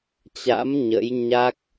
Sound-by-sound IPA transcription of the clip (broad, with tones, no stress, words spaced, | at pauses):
t͡ɕa̰˧˥m ɲə̰˧˥j ɲa˦˥k̚